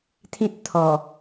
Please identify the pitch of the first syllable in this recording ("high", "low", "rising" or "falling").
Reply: high